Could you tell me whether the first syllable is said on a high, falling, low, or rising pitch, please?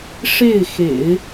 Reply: falling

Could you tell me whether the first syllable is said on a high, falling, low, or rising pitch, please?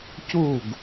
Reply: falling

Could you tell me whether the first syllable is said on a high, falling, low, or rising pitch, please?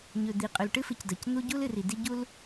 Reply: low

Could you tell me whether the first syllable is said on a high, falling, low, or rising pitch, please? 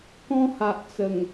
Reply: high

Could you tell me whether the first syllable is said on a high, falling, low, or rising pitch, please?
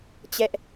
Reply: high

